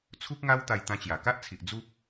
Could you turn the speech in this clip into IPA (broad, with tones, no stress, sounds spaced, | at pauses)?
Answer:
t͡sʰ u˦ k̚ ŋ a˦ w t̪ a˧ j t̪ ã˧ t͡ɕ j a˨˩ k a˦ ʔ t͡sʰ i˨ ʔ d͡z u˦ p̚